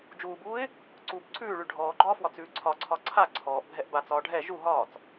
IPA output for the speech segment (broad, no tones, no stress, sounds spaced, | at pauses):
d͡ʒ uː b uː ɪ̯ | ǀ uː b ǀʰ ʉː ɭ ʉ ɖʱ ɔː ɡ͡ǃ ɒː f w ɒ t͡s ʉː ǀʰ ɒ ǀʰ ɒ ǀʰ a ǀʰ ɔː ʔ bʱ ɛ ʔ b a t͡s ɒː ɖʱ ɛ ʒ u ɦ ɒː t͡s